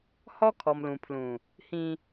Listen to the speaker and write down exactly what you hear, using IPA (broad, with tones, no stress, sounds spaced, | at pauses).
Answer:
h ɔ˦ kʰ ɔ˨ m l ũ˨ pʰ l ũ˨ | h ĩ˦